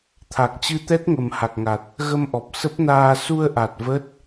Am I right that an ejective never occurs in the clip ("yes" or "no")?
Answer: yes